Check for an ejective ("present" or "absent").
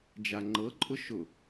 present